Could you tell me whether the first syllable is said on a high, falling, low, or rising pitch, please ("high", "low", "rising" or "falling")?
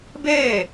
falling